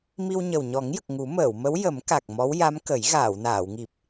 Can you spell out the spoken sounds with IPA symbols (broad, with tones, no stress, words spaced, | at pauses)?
mi˧wɲə˨˩w ɲɔ˨˩˦ŋjə˨˩k̚ ŋu˨˩˦məː˨˩˨wmə˧˥w jə˨˩˦mka˨˩k̚ mɔ˧˥wja˧˥m kə˨˩˦j ɣaː˨˩˨wnaː˨˩˨wŋi˨˩p̚